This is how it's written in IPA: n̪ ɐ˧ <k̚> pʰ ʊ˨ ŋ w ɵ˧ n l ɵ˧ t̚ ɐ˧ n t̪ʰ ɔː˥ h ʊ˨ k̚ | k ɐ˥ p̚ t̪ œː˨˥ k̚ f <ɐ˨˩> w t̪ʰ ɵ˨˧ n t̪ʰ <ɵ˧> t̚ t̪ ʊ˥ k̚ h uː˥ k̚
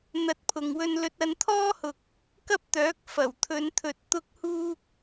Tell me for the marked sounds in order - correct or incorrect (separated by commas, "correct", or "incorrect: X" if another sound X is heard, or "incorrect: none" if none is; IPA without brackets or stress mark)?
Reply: incorrect: t̚, correct, incorrect: ɵ˨